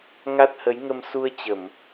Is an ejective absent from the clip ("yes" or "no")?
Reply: yes